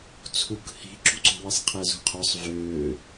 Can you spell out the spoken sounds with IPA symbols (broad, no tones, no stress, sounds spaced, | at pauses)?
t͡sʰ u k h i̤ ǁ ṳ ǀ o̤ w i sˤ qʰ ɛ z ṳ qʰ œ sˤ v øː